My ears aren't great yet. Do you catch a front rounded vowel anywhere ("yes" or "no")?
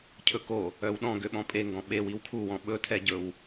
yes